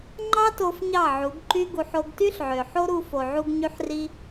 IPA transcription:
ŋ͡ǃ ɑ˦ t o˧ f ɲ ɑ˦˨ ʕ u˨˦ ɡ ǃ y˦ ɡ u˧ ħ o˧ ɡ t y˦ ɬ ʕ ø˨ ħ o˦ ɾ u˧ f o˨ ʕ u˧ ɡ ɲ y˧ ħ r i˧

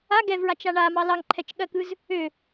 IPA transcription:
a ɡ ɛ v ɹ a t͡ʃ a ɳ a m ɑ l ɑ ŋ ǃʰ ɛ t͡ʃ ɠ ɜ k ɯ z | ø

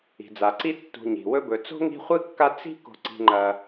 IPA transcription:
i̤˩ d͡z a˩ ǀ i˦ tː ṳ˨ ɲ i̤˩ w ɵ˦ b ɵ˨ t͡s o̤˥ ŋ i̤˦ χʷ ɨ˥ kː a˦ t͡s i̤˦ k o̤˨ ǀ i̤˨ ŋ͡ǃ ɐ˨

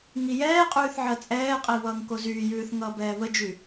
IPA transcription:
ŋ i j ɛː qʼ yː θ ʕ ɜ t͡sʼ ɛː qʼ i β ʌː ŋ k o z yː j ʉː θ ŋ ʌː b ɛː β ə d͡ʒ y

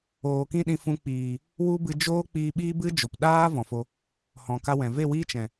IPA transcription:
oː˨ k ĩ˦ ɗ ĩ˧ f ũ˧ k͡p iː˨ | w u˦ b ɨ˧ d͡ʒ oː˦ k͡p iː˧ ɓ iː˦ b ɨ˦ d͡ʒ o˨ p ɗ aː˦ v ɔ̃˨ f o˧ | h ɔ̃˨ k a˦ w ɛ̃˨ v e˦˨ w iː˦ t͡ʃ ɛ̃˨

